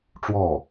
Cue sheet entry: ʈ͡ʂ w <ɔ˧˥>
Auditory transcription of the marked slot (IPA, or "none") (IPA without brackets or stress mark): ɔ˥˩